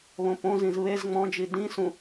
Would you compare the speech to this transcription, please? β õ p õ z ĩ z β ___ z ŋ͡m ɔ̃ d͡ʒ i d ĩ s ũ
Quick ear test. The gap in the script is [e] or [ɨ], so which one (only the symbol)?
e